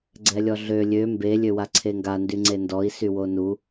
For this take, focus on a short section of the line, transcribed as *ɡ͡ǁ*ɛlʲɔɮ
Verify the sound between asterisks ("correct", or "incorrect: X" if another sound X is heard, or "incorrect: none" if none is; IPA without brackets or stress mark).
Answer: incorrect: ɡ͡ǀ